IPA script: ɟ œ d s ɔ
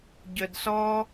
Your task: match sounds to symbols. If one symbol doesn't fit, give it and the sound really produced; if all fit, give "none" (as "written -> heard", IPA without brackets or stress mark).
none